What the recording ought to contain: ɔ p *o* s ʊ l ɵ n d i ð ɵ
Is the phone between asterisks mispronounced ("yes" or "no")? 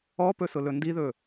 yes